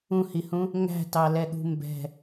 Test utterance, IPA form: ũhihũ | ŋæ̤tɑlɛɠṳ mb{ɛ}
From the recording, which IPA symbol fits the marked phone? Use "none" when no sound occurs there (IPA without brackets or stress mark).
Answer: ɛ̤